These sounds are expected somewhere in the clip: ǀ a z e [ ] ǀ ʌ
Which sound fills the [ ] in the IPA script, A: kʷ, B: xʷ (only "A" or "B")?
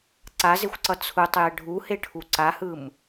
B